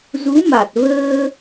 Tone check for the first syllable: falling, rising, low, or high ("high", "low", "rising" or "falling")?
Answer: rising